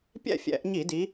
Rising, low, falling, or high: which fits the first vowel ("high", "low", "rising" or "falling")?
falling